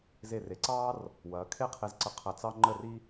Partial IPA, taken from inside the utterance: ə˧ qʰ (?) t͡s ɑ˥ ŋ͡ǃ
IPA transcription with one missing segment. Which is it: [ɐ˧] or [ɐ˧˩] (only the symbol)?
ɐ˧˩